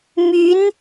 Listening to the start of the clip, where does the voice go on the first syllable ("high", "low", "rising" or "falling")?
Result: rising